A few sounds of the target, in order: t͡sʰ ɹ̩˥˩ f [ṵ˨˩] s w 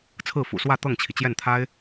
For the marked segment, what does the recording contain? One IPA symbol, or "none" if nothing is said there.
ṵ˨˩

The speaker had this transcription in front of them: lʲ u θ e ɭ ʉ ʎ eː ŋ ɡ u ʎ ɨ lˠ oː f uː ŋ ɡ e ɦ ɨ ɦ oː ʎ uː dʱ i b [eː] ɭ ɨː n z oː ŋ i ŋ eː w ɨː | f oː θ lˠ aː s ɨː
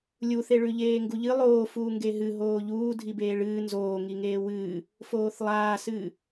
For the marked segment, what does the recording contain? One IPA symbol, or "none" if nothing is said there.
eː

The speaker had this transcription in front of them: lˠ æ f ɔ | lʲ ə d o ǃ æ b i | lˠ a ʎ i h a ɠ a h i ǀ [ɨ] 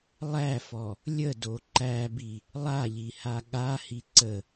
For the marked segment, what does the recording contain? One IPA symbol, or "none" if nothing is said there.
ə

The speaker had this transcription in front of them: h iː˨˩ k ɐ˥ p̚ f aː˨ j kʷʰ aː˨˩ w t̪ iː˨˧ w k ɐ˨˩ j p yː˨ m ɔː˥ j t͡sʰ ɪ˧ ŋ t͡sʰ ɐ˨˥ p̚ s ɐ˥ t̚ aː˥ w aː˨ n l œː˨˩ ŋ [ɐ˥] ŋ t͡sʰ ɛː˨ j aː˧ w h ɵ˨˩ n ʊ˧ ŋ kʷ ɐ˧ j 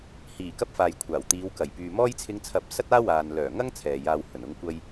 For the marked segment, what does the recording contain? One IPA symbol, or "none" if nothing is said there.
ɐ˥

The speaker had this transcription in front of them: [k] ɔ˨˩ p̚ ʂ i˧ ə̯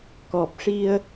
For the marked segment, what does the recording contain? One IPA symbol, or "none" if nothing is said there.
k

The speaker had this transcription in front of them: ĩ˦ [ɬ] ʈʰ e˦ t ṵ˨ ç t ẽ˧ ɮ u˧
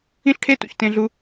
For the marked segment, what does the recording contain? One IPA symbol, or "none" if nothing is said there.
ɬ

